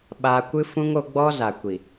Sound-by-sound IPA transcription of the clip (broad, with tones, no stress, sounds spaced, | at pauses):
ɓ aː˦ kʷ ɨ˦ f ũ˦ ŋ o˧ ɡ͡b ɔ˦ z a˨ kʷ i˨